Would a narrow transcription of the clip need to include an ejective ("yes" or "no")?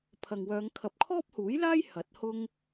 no